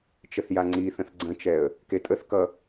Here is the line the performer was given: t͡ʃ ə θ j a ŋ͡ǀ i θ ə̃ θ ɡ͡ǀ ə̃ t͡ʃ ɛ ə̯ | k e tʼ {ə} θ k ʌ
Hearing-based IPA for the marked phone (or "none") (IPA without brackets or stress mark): ə